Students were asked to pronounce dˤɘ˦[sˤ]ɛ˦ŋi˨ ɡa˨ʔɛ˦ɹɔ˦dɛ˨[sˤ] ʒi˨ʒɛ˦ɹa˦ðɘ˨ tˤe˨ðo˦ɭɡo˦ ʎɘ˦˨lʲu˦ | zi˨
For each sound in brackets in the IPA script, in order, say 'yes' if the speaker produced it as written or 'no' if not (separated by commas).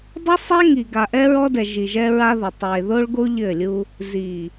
yes, no